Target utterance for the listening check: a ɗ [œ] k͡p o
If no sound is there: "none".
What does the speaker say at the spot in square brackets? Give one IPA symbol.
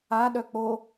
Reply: œ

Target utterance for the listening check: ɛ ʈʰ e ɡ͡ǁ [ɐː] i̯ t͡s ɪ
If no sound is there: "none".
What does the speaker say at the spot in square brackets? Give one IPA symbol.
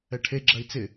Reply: ɐ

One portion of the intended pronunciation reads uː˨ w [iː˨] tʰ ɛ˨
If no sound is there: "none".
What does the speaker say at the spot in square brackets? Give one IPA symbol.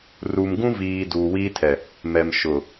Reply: iː˦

